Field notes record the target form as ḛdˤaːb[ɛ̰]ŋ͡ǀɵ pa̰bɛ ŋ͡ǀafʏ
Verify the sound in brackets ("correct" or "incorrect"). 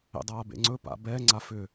incorrect